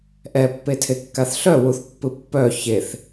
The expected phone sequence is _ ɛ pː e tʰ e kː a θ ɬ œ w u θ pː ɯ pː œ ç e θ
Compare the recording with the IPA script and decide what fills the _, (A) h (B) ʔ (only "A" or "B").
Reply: B